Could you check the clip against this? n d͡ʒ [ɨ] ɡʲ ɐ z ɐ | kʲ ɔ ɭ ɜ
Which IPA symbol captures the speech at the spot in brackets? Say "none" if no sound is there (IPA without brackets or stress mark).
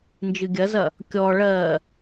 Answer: ɨ